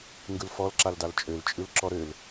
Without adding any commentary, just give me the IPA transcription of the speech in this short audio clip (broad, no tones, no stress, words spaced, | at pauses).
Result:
ŋɡɯlfɔl ǁaldalt͡ʃʼøl t͡ʃʼɯlǁɔɾøl